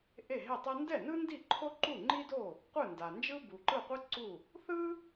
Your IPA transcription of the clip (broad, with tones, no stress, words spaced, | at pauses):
ʔe˥˩ɦe˥˩tˤɛ˥ ndɛ˥˩nɯ˥ndi˥˩ ǃʰo˥ǃu˥˩ŋ͡ǃi˥do˥˩ | qʷɯ˥˩nda˩ nd͡ʒɯ˥bu˩ǃɯ˥˩qʷɯ˥ ǀu˥˩ | θɯ˥